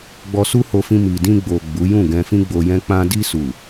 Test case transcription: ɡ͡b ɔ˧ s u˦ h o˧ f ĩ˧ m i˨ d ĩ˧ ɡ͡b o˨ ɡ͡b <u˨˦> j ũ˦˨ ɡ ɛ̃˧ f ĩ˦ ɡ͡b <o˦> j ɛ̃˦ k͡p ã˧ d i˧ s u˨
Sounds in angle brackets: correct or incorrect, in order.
correct, incorrect: o˧

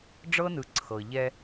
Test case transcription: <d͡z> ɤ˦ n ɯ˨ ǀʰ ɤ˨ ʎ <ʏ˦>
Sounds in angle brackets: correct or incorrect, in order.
incorrect: ɖ͡ʐ, incorrect: ɛ˦

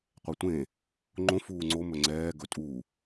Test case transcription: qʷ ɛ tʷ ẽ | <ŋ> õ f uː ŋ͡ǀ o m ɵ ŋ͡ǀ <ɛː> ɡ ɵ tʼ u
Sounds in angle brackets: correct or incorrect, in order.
incorrect: ŋ͡ǃ, correct

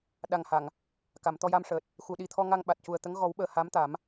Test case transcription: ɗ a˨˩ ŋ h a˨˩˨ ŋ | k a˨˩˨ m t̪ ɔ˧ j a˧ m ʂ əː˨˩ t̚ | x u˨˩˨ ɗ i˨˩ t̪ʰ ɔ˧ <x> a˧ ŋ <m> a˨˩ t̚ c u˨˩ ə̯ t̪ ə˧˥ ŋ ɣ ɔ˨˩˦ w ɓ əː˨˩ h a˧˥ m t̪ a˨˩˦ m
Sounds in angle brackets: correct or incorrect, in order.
incorrect: ŋ, incorrect: ɓ

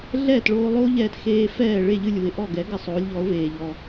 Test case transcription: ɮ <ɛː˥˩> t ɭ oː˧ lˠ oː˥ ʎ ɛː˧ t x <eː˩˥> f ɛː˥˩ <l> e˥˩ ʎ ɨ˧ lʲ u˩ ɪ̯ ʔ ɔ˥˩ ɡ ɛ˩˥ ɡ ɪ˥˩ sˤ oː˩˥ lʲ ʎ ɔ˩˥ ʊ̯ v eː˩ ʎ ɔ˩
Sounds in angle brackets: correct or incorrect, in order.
correct, incorrect: eː˧, incorrect: ɭ

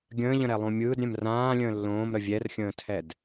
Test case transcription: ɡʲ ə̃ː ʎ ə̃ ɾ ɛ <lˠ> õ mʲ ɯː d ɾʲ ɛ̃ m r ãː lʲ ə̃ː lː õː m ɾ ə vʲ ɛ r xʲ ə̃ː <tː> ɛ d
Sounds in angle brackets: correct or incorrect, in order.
correct, incorrect: tʰ

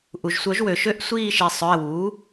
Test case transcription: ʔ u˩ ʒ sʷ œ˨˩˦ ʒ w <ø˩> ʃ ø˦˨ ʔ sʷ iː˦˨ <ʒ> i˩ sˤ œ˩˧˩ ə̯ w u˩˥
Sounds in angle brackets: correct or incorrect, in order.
correct, incorrect: ʃ

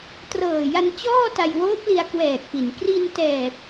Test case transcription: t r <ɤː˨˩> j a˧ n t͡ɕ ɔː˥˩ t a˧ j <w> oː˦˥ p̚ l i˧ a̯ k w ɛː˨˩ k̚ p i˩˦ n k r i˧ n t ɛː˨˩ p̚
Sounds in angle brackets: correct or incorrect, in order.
correct, correct

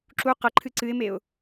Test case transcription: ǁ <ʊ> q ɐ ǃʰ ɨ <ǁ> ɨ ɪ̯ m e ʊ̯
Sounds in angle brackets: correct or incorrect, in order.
incorrect: u, incorrect: ǀ

